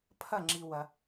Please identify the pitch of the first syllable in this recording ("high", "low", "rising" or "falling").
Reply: falling